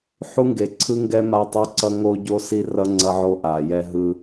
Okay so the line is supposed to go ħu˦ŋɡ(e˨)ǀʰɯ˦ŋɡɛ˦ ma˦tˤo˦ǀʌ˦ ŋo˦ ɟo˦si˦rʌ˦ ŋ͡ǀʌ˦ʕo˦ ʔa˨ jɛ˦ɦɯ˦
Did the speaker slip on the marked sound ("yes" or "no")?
no